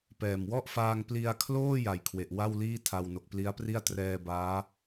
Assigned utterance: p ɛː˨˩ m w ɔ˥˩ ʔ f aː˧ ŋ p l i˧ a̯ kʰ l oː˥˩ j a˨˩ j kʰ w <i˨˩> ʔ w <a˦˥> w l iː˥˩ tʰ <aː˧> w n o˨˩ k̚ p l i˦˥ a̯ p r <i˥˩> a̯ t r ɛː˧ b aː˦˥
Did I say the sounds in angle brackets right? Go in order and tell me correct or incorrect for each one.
incorrect, incorrect, incorrect, correct

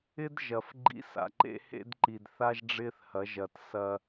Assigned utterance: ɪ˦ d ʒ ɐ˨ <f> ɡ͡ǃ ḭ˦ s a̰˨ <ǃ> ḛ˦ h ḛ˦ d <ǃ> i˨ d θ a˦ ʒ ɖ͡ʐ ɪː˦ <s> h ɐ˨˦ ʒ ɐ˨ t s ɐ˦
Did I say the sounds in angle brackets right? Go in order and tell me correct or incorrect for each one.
correct, correct, correct, incorrect

